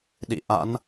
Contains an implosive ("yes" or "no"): yes